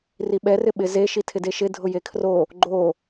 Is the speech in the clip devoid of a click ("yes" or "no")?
no